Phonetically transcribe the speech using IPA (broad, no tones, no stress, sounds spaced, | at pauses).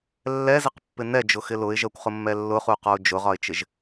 lː ɛ z ɪ q pː ɪ n ɛ d͡ʒ ʊ x ɪ l ʊ ɪ̯ ʒ ɜ kʷ χ ʊ mː ɛ lː ʊ χ u q ɔ ʊ̯ d͡ʒ ʊ ʁ ɒ ɪ̯ t͡ʃ ɪ ʒ